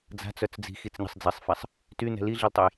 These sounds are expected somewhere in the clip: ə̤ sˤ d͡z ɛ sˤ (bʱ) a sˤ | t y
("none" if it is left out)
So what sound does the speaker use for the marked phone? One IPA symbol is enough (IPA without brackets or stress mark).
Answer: f